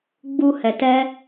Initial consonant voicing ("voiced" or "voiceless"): voiced